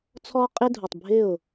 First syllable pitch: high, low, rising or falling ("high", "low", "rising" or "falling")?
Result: high